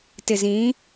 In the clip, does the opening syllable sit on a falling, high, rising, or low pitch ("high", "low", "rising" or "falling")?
low